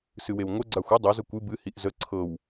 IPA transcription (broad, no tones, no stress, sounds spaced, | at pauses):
s ɨ w e w ŋʷ ə ɡ͡ǀ a xʷ ɨ dˤ ɛ z ɤ kʷ ɨ b ɨ h i ʔ z ə ǀʰ ɤ w